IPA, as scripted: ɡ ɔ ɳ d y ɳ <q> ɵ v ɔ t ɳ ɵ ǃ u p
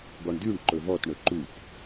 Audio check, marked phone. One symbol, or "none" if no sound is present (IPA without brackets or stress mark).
ǃ